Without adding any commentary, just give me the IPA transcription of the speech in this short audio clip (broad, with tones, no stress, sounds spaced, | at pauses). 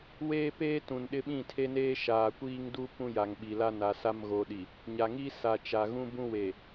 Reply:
w eː˦ p eː˦ t ũ˨ n ɗ ɪ˦ ɓ ĩ˦˨ tʰ e˦ n eː˦ ʃ aː˨ kʷ iː˦ ŋ d u˦ p ũ˦ j a˨ ŋ ɓ i˨ l a˦ n a˨ s a˦ m ɣ oː˨ ɗ i˨ | ɲ a˨ ŋ i˦ s a˨ t͡ʃ a˨ ɣ ũ˦ b ũ˦ w e˨